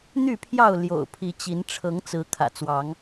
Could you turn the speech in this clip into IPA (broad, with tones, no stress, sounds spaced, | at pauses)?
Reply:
n̪ y˥˨ pʰ j ɑ˥˨ ʊ̯ l j o̰˨˩ ʊ̯ pʰ i˨˦ t͡ɕ i˨˦ n ʈ͡ʂʰ ɤ˨˦ ŋ t͡s ɹ̩˨˦ kʰ ä̰˨˩ t͡s w ɑ˨˦ ŋ